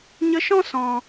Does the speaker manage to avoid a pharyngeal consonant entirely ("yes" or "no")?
yes